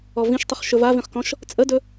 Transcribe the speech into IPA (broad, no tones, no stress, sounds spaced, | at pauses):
ɔ v ĩ ʃ tˤ ʏ χ ʃ ɵ v a v ĩ χ k ɔ̃ ʃ | t͡sʼ ə d ɵ